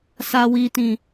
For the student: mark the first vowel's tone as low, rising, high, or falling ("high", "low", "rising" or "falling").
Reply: low